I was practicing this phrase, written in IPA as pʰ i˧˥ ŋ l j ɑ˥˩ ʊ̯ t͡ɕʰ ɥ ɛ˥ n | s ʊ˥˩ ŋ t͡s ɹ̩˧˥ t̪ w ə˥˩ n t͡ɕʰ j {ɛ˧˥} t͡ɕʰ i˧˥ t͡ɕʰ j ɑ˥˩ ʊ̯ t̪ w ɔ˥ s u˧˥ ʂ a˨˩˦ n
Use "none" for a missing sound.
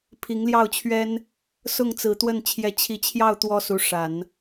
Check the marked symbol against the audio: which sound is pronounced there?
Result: ɛ˧˥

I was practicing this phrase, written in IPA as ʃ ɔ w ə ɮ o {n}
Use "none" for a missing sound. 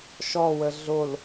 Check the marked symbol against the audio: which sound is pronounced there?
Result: l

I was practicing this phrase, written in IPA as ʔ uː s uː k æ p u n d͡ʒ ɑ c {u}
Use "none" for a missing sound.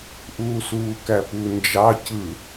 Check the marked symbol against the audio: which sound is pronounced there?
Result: ɯ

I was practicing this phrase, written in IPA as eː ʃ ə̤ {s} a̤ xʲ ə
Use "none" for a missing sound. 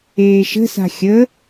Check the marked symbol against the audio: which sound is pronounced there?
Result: s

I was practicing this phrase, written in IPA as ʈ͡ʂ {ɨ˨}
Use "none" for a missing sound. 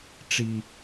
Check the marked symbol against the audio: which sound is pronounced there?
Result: i˨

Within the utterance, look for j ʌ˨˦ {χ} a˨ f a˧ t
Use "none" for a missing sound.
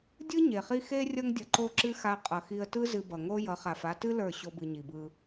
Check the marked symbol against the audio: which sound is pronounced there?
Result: χ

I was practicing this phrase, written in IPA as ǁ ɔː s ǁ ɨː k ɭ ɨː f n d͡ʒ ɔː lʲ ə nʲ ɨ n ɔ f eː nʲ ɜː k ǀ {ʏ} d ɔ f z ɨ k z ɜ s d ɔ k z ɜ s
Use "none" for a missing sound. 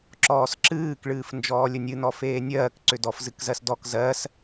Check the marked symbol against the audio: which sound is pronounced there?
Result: ʏ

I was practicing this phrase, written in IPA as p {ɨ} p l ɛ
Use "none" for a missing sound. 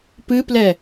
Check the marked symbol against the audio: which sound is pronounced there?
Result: ɨ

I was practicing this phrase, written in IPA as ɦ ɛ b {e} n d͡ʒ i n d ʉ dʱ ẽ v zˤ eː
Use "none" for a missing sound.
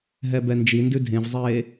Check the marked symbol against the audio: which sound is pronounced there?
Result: ɛ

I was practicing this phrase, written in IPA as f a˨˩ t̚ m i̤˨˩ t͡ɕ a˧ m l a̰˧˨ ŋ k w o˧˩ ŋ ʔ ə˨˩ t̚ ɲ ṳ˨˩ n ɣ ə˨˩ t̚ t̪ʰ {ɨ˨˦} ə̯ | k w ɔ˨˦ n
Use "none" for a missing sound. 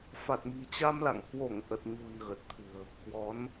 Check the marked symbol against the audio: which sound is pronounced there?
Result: ɨ̤˨˩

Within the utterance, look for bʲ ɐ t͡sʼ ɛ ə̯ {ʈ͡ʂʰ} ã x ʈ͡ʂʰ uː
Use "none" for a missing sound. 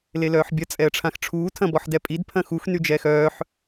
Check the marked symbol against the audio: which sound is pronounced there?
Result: ʈ͡ʂʰ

